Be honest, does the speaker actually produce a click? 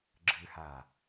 yes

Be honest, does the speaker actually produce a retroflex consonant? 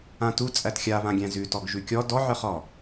no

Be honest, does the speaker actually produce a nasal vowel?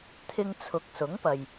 no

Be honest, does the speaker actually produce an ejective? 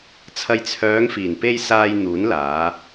no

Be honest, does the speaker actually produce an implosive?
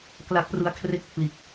no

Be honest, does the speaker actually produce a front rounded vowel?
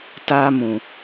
no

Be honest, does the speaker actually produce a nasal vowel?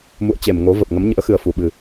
no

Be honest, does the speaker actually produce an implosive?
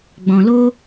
no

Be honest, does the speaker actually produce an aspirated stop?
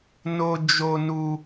no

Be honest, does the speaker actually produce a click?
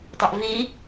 no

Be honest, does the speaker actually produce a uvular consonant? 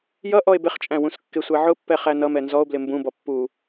yes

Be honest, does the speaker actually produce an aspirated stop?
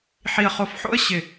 no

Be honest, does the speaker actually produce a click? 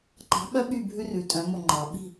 yes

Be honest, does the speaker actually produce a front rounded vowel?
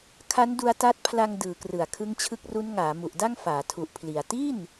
no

